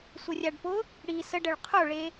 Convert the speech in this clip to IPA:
sʷ ə rʲ a ɖ p ʊ | ɽ i s ə ɖ ə ɭ qʰ o ɭ e

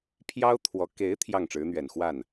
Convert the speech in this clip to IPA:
pʰ j ɑ˥ ʊ̯ t̪ʰ w ɔ˧˥ k e˧˥ ɪ̯ t̪ʰ j ɑ˥˩ ŋ ʈ͡ʂ ɻ̩˧˥ n̪ ɥ ɛ˨˩ n x w a˥˩ n

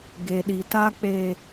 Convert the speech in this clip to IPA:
ɡ e˨ ɗ i˨ t a˦ k͡p e˦

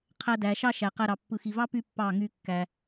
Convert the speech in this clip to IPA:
qʰ æ˧ d æ˨ ʃ ɑ˦ ʃ æ˨ q æ˧ ɾ ɑ˨ pː ɯ˨ x i˨ v ɑ˦ p y˦ pː ɑ˦˨ ŋ y˧ kː æ˧

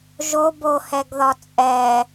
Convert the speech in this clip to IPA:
ʒ o b o h ɛ ɡ ð ɒ t͡sʼ ɛ

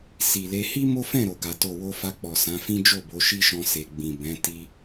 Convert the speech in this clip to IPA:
s i˨ l e˧ h i˦ m o˦ f ɛ̃˦˨ ɾ o˨ ɡ a˨ t o˨ w o˧ f a˧ k͡p ɔ˨ s ã˨˦ f ĩ˦ d͡ʒ o˦˨ b o˨˦ ʃ i˦ ʃ ɔ̃˧ s e˨ ɡ͡b ĩ˨ b ɛ̃˨˦ t i˦

